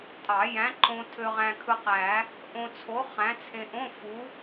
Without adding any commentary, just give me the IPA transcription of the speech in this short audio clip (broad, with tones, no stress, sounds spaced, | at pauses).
tʼ ɑ˨˩˦ j æ̃˨˥ ǃ õ˧ tʰ ø˧ ʁ æ̃˧ kʰ ɯ˧ q æ˨˩˦ | ʔ õ˧ t͡sʰ o˨˥ χ æ̃˨˥ t͡sʰ ẽ˧ ʔ õ˧˥˧ f u˨˥